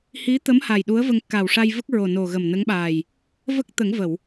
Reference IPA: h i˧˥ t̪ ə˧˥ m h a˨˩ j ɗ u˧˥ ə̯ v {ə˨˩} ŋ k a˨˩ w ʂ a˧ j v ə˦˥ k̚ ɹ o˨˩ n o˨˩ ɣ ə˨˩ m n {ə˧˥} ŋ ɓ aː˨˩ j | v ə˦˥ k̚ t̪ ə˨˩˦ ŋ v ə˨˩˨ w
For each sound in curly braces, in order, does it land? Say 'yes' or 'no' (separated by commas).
no, yes